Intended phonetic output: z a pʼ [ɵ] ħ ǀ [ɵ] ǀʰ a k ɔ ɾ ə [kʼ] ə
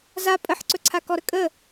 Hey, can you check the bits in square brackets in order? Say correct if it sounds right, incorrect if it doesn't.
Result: incorrect: ə, correct, correct

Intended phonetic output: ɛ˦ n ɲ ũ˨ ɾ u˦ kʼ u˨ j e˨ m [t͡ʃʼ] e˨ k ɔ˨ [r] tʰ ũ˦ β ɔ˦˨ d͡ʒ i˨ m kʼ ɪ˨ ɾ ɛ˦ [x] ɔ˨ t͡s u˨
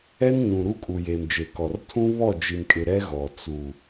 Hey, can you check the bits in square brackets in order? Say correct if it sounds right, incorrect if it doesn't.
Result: incorrect: d͡ʒ, correct, incorrect: ɣ

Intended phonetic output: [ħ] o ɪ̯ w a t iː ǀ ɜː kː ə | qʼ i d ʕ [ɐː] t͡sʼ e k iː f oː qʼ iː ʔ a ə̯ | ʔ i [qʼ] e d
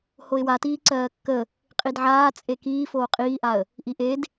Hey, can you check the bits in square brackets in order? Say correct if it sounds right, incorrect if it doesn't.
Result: incorrect: h, incorrect: aː, incorrect: ʔ

